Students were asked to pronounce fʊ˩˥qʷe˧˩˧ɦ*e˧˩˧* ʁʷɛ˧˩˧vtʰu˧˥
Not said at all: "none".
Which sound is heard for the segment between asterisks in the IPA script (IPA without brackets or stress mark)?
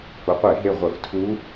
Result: e˧˩